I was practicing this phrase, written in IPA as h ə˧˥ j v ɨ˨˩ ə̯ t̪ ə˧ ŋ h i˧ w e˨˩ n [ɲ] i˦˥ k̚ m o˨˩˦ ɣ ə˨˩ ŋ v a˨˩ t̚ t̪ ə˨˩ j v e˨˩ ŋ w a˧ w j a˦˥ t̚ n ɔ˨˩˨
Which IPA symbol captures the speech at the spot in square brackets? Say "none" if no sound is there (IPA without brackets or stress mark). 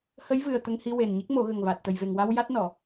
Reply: ɲ